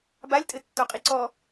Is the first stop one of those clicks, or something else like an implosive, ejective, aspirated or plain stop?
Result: plain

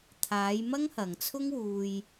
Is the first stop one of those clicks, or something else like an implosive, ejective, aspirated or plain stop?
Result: aspirated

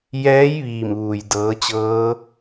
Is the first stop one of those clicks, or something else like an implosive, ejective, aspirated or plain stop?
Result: plain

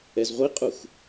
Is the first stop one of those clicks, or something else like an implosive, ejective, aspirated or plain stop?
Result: ejective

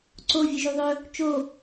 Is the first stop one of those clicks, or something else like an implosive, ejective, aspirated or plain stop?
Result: click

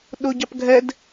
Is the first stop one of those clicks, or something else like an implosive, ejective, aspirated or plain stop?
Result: implosive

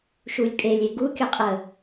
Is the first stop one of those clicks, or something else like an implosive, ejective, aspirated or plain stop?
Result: ejective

